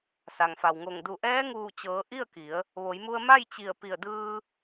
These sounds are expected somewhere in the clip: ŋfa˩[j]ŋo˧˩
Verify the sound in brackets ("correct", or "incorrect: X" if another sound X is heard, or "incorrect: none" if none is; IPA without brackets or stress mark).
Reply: incorrect: w